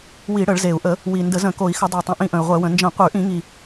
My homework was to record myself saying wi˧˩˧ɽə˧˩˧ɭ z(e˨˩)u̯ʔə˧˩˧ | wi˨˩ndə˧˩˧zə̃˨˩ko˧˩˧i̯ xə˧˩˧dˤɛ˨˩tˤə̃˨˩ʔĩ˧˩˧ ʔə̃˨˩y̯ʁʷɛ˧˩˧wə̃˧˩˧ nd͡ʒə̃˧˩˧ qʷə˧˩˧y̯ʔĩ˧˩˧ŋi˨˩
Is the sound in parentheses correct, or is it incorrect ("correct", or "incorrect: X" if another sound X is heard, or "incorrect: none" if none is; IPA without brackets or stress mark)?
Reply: correct